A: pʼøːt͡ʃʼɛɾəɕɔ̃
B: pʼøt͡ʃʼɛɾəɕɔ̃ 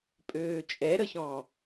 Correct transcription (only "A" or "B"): A